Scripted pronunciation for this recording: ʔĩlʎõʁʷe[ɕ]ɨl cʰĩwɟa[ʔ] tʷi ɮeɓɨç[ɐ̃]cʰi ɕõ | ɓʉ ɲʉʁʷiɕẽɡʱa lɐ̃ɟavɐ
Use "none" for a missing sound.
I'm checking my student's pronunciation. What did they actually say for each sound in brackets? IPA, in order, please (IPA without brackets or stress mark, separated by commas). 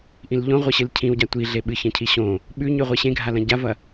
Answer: ɕ, none, ɐ̃